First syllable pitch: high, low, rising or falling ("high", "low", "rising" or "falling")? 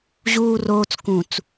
low